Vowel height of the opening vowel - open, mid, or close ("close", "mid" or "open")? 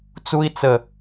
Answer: close